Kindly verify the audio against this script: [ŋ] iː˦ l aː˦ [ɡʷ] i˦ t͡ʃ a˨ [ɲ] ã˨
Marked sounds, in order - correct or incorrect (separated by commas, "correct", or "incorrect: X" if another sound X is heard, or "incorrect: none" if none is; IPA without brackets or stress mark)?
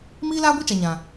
incorrect: m, correct, correct